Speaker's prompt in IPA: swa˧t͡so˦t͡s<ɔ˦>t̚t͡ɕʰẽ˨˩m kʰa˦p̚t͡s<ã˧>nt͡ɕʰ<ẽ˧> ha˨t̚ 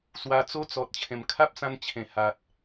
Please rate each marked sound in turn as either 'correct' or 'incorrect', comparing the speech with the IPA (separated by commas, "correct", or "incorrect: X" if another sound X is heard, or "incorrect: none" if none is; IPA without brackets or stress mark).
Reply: incorrect: ɔ˨, correct, incorrect: ẽ˨˩